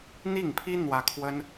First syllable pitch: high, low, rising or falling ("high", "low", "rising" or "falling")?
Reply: falling